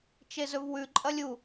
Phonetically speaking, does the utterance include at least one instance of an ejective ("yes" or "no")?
yes